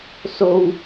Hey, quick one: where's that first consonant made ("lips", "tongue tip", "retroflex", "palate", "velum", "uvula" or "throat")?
tongue tip